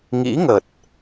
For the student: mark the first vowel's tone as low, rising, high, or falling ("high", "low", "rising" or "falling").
rising